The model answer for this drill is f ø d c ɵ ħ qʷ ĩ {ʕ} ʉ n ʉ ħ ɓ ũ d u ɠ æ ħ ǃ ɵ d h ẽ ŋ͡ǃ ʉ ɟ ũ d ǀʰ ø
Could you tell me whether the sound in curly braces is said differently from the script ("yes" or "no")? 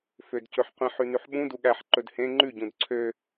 yes